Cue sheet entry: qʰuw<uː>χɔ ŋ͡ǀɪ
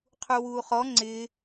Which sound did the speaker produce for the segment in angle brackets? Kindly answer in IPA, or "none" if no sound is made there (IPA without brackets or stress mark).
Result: uː